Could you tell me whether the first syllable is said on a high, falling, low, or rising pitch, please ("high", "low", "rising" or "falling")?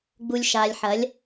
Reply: low